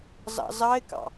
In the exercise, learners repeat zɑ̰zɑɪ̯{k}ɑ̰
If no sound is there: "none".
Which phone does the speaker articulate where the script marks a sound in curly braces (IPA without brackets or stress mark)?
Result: k